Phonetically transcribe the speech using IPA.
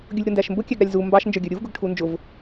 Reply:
ɡʲʊlʲɾʊndæʃmbʊ kʲæɡɾɑlʲzu mbɑʃ nd͡ʒə˞ɡʲə˞ɾʲuv ɡʊɡʈʰund͡ʒʊv

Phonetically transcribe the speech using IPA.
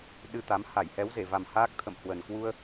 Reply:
ɗɨ˧t̪a˨˦m ha˧˩jhɛ˨˦wze˧˩va˨˩m haː˦˥k̚t̪ʰə̰˧˨mhwə˨˩n kwu˧ə̯

